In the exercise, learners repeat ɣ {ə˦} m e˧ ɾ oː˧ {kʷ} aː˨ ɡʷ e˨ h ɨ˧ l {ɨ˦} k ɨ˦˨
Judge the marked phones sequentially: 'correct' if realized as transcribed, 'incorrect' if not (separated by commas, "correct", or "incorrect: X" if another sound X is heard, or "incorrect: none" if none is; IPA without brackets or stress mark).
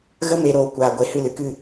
correct, correct, incorrect: ɨ˨